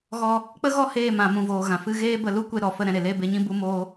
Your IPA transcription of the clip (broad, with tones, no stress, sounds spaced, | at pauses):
ɣ ɔ˧ | k͡p ə˦ ɣ ɔ˦ h eː˦˨ m ã˨ m ũ˨ v oː˨ ɣ ã˨ f ɨ˧ ɣ eː˦ b ə˧ l u˦ kʷ e˧ ɾ ɔ˨ f ə˧ ɾ ɛ̃˧ ɾ e˨ l eː˦ b e˨˦ ɲ ĩ˦ b u˦ m oː˦